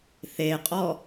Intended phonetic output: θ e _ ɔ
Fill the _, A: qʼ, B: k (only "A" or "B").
A